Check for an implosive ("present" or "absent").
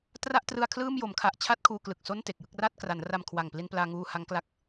absent